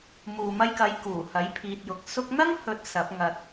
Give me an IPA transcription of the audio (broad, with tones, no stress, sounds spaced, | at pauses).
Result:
m uː˨ m ɐ˧ j k ɐ˨˧ j k uː˨˩ h ɐ˨˥ j pʰ iː˨ t̚ j ʊ˨˥ k̚ s ʊ˧ k̚ n̪ ɐ˥ ŋ h ɵ˨˥ t̚ s ɐ˨˥ p̚ ŋ ɐ˨ t̚